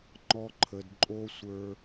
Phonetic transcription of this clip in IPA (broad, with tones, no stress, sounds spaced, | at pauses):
ŋ͡ǃ ɔ˧ ǃʰ ə˨ d ǃʼ o˦ sʷ ə˞˧